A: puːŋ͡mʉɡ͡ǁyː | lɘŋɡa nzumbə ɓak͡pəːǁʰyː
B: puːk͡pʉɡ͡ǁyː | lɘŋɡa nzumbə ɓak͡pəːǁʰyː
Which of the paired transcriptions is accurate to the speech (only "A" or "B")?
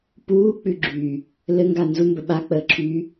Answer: B